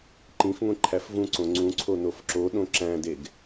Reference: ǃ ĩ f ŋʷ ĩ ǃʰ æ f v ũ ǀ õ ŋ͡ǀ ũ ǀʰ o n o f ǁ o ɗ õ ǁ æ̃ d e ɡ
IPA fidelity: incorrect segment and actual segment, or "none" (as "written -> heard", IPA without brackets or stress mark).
none